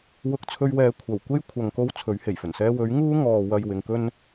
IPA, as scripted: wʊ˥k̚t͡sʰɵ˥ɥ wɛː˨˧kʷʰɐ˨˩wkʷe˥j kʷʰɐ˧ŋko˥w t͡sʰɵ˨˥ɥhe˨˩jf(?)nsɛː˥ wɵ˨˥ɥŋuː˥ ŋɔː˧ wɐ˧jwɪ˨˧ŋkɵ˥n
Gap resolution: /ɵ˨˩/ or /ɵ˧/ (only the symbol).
ɵ˨˩